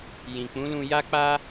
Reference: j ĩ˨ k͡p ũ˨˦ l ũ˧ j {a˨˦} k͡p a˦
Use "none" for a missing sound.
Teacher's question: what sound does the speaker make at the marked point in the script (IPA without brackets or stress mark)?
a˦